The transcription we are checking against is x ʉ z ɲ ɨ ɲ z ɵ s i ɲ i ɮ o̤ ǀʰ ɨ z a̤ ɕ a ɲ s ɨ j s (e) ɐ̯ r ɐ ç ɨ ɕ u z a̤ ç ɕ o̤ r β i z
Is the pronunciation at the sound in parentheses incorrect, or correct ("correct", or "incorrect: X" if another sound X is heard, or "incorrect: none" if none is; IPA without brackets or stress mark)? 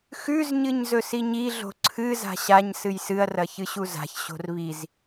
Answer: incorrect: ɨ